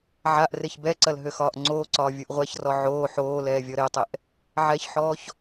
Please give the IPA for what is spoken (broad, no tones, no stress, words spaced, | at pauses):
ʕaʔ reçbɛǀɐl ɦøxɒːʔŋ͡ǀoːǀɒː vʲuʔʁʷɛçrɔ ʕoː ħoːlɛː vʲɔɾetˤɛʔ | ʕɛçħɔːç